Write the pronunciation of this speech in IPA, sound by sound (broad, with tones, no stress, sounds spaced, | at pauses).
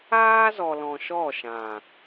aː˦ z ɔ˨ l ɔ̃˨ ʃ ɔ˦˨ ʃ ã˨